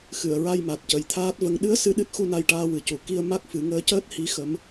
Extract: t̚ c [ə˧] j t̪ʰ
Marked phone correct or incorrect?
incorrect